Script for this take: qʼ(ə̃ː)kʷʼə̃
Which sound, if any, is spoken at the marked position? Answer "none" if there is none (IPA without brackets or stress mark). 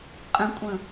ə̃